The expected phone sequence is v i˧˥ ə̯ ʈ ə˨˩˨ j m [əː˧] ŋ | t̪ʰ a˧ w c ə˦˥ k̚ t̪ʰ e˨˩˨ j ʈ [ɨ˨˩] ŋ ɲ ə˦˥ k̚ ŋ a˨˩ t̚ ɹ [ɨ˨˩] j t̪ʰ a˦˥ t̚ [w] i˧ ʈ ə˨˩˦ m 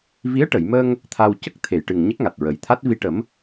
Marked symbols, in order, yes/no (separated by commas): yes, yes, no, no